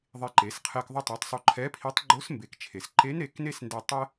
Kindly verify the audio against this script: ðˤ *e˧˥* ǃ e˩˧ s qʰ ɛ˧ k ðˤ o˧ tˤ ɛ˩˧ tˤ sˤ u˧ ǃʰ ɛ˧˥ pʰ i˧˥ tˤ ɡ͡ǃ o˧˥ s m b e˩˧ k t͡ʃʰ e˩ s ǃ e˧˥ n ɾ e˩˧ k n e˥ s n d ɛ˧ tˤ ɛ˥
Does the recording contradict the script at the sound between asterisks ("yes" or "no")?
yes